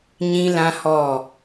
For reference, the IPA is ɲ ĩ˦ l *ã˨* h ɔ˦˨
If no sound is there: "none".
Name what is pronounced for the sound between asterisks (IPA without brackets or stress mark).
ã˦